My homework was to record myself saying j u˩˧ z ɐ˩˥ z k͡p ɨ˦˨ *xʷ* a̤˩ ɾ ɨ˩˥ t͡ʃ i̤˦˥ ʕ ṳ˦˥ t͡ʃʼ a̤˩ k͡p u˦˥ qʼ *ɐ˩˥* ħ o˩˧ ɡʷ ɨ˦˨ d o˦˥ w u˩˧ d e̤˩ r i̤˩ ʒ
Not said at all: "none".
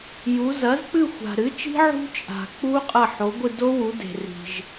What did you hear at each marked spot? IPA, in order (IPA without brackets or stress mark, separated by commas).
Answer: xʷ, ɐ˦˨